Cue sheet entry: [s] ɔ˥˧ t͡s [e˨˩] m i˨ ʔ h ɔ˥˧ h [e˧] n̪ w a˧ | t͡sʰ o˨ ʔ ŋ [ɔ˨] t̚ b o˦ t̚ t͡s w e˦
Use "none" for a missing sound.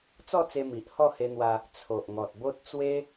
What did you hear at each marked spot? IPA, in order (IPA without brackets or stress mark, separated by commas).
t͡s, e˧, e˧, ɔ˨